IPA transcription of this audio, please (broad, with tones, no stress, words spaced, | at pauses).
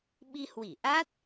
ɓi˧hwi˧˩ʔa˦˥t̚